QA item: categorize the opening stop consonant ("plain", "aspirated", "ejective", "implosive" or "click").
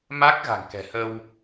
plain